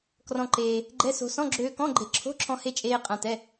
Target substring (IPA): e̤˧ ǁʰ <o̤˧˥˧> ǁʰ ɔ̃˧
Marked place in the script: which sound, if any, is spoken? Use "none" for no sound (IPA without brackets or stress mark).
o̤˧˥˧